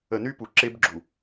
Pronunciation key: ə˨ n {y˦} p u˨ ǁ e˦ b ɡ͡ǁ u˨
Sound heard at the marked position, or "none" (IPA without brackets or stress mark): y˦